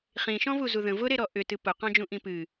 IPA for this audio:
χ ĩ ʃ ɔ̃ v u z u ð ə̃ v ʊ ɾ e ɾ ɔ ʔ ʏ t ɨ p ʊ q ɔ̃ d͡ʒ ũ ʔ ĩ p ɨ

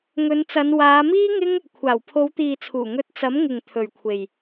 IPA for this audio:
ŋ ɵ˨˧ n t͡s ɐ˨˧ n w aː˨˧ m iː˥ ŋ ɪ˥ ŋ | kʷʰ aː˨˩ w pʰ o˨˧ w t̪ iː˨ t͡sʰ uː˨˩ ŋ ɵ˧ t̚ t͡s ɐ˨˥ m ŋ ɪ˨ ŋ t̪ʰ ɵ˨ ɥ kʷʰ e˨ j

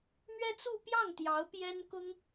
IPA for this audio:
m ɥ ɛ˥ t͡s u˥˧ p j ɑ˥˩ ŋ t̪ j ɑ˧˥ ʊ̯ p j ɛ˥ n k ʊ˥ ŋ

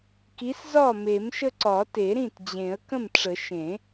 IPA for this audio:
k i˨˥ s z ɒ˥˩ m e˨˩˦ m ʃ ə˦ ǀ ɒ˨˩˦ t e˨˩˦ ɾ ĩ˥˩ t d͡ʑ ẽ˨˩˦ ə̯ k ə̃˥˩ m ʈ͡ʂ ə˨˩˦ ʃ ẽ˨˩˦

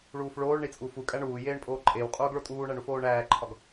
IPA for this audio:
ɭ uː f ɭ oː ɭ ɳ i t͡sʼ u f u kʼ æ ɳ uː j eː ɳ pʼ oː ǃʼ eː w qʼ oː ɡ ɭ o tʼ uː ɳ æ ɳ u f oː ɳ æː ǃʰ ɒ ɡ

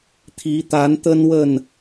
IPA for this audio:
t̪ʰ i˨˦ t̪ a˨˦ n t̪ ə˦ n w ə˥˨ n

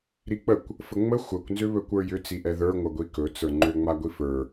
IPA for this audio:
ɾ i k͡p ə kʷ | f ə ŋ͡m ə xʷ ə kʷ n z ʏ β ɵ kʷ ə˞ j ʏ t͡s i ʔ ɛ ð ə˞ ŋʷ ə ɡʷ i k ɵ t͡s ə˞ ŋ͡ǃ ʏ ŋ͡m a ɡʷ i f ə˞

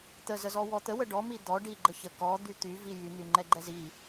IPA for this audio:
t̪ ə z ə z ɔ w ɔ t̪ ə w ə ɖ ɔ m i d̪ ɔ ɖ i ɡ͡ǃ ə ç ə k ɔ d̪ y t̪ y v i j y n̪ y ŋ͡ǃ ɛ ɡ͡ǃ ɛ z i

